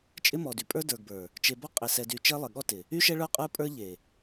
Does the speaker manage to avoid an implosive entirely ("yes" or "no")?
no